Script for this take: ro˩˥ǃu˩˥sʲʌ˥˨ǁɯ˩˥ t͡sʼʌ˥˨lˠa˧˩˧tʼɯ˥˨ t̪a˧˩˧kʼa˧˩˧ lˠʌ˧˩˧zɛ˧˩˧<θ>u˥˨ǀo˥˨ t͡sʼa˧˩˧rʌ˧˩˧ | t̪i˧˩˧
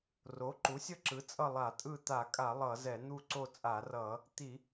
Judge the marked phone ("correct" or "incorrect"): incorrect